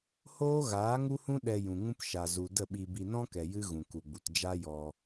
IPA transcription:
h oː˦ ɣ aː˨˦ ŋ u˦ h ũ˦ ɗ ɛ˧ j ũ˨ ŋ ũ˦ p ʃ a˨ z u˨ d ə˦˨ ɓ i˧ b i˧ n ɔ̃˦ k ɛ˨ j ɨ˦ ɣ ũ˨ k u˨ ɡ͡b u˨ t d͡ʒ a˦ j ɔ˧

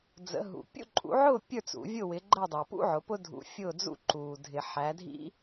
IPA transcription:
d͡z ə̰˨˥ ɦ ṵ˨ pʲ ṵ˥˨ ǃʼ ṵ˨˥ ʕ ʊː˥˨ pʲ ə˞˥˨ t͡s ṵ˨˩˦ vʲ ʊ˥˨ w ɪ˨˥ ɡ͡ǃ əː˥˨ dˤ əː˨ p ṵ˥ ʕ ʊ˨˥ p ʊ˥ dʱ ṵ˨˥ fʲ ʊː˥˨ d͡z ṵ˥˨ ǃ uː˨ dʱ ɪ˨˩˦ ħ æ˨˥ dʱ ḭ˥

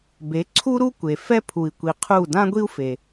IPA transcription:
b e˩˥ ǀʰ u˥ ɾ u˥ kʷ e˩ f ɛ˥ pʰ u˩ i̯ kʷ i˩ qʰ u˥˩ d ã˥ ɡʷ i˥ u̯ f e˩

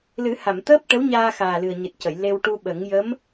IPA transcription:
l ɨ˨˩˦ h a˨˩˨ m t̪ əː˦˥ p̚ ʈ ə˧˥ w ɲ aː˧ x aː˨˩ l ɨ˨˩ ə̯ ɲ ɨ˨˩ t̚ c ə˨˩˨ j l e˧ w ʈ u˧ ɓ ə˨˩˦ ŋ j ə˧˥ m

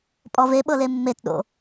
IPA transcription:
pʼ ɔ v e ɓ ɤ l e mː e t ɗ o̰

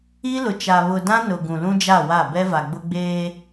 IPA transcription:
i˦ l ʊ˨ t͡ʃ a˨ β ʊ˨ d ã˦ n ʊ˨ ɡ ũ˨ l ũ˦ d͡ʒ a˦˨ w a˦˨ b ɛ˦ v a˨ ɡ͡b ʊ˦ ɡ͡b eː˦

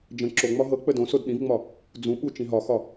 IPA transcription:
d͡ʒ ə̃ ǁ o ŋ͡m ɒ ɦ ɤ k͡p ə d õ s o d ɗ ĩ v ŋ͡m ɒ | d͡z ũ ɓ u t͡ʃ ĩ ɦ ɒ x ɒ

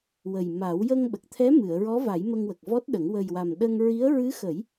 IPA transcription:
w ə˨˩ j m a˨˩˦ w j ə˧ ŋ ɓ ə˨˩ k̚ t̪ʰ ɛ˧˥ m ɨ˨˩˨ ə̯ ɹ ɔ˧˥ v a˨˩˦ j m ə˧ ŋ w ə˨˩ k̚ v ɔ˦˥ t̚ ɗ ə˨˩˦ ŋ w ə˨˩ j w a˨˩ m ɗ ə˧ ŋ ɹ i˧˥ ə̯ ɹ ɨ˧˥ x ə˨˩˦ j

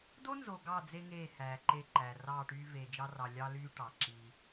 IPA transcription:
d o˦ n z o˨ ɡ ɑ˦˨ d͡z e˦ ŋ eː˦˨ h æː˨ ǃ e˦˨ ǃ æ˨ r ɑː˦˨ ʈ yː˦ v eː˨ d͡ʒ ɑ˦ r ɑ˨ lʲ ɑ˦ l yː˦ ʈ ɑ˨ ǁ iː˦

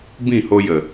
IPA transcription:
b ĩ˦˨ h o˧ j ə˨

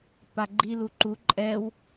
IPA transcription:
p a ɡ͡ǃ i l u ǃ u ǃʼ ɛ w

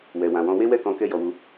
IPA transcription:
w ɛ˨ w ã˨ w ɔ̃˧ w e˦ w ɛ˦˨ k ɔ̃˧ k ɛ˦ j ɔ˧ w u˧

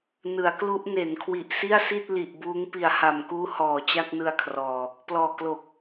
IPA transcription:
n ɯ˩˦ a̯ k l u˦˥ ʔ n e˩˦ n kʰ w i˨˩ ʔ s i˥˩ a̯ s i˥˩ t̚ l i˨˩ ʔ b uː˦˥ ŋ p i˨˩ a̯ h a˨˩ m k uː˦˥ h ɔː˨˩ t͡ɕ a˥˩ k̚ n ɯ˧ a̯ kʰ r ɔː˨˩ | p l ɔː˨˩ k l o˨˩ k̚

